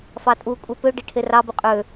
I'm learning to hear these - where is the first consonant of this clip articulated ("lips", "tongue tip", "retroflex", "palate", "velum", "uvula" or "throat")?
lips